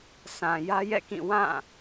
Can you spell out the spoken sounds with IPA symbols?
s ã˨ j ä˦ j ɛ̰˦˨ k ĩ˦˨ w ã˦˨

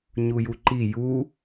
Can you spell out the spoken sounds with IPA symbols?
ɲ u j u ǃ i j u

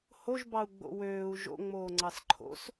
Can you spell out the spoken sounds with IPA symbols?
h o ʒ b ɑ u̯ ɡ͡b o̰ w øː u̯ ʒ o̰ ŋ͡m oː ŋ͡ǀ ɑ s ǃʰ o̰ s

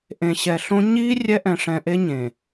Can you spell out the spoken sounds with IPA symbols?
ʔ ẽ˨ ɕ ɛ˨ ɬ õ˦ ɲ i˦ rʲ ɛ˦ ʔ ɛ̃˨ ʂ ɛ̃˨ ʔ e˦ ɲ ẽ˨

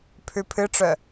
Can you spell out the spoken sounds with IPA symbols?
pʰ ʉ pʰ ɨ ʈ͡ʂ œ

